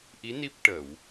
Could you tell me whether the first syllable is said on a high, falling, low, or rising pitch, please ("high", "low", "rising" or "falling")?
rising